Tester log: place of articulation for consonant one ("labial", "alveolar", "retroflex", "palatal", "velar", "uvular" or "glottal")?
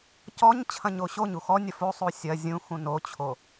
palatal